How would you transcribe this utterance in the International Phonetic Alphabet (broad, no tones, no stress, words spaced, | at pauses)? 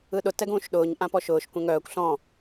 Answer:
ɯɗʊ tɛɡũːʃɗʊːɲ ʔãpɔʃʊːʃ kʷẽŋœːkʷ ɬɔ̃